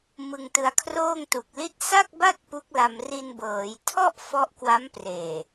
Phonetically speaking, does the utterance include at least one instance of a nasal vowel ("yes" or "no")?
no